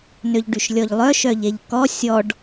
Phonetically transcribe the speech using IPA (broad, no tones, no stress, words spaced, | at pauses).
nøʎɖyʃlʲɔʎlˠœ ʃœʎeʎkɔ sʲɔɖ